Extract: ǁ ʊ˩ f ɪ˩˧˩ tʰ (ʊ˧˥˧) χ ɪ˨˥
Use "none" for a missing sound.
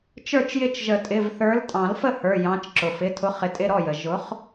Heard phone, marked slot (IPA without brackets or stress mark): ʊ˨˥